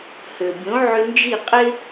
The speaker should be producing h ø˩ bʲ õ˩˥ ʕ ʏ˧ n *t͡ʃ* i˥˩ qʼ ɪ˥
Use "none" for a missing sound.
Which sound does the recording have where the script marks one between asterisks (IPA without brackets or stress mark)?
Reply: d͡ʒ